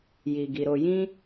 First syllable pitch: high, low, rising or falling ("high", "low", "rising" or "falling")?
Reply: low